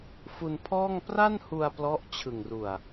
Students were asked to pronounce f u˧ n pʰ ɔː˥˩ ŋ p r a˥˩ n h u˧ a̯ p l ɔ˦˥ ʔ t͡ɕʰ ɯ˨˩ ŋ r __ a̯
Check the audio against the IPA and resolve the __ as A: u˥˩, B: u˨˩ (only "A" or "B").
B